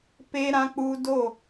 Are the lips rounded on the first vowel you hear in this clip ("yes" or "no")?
no